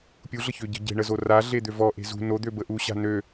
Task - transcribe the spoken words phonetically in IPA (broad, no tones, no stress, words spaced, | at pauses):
pʲuɮə çøɟə̤ ɟe̤ɳəzo ra ɮed̪øvɔ ʔe̤zṳ nod̪ø bəʔuɕa̤ nø